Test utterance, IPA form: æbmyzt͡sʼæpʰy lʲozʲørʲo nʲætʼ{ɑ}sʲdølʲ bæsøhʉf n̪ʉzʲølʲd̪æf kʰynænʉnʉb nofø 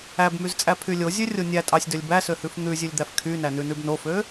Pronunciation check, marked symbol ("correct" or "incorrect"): correct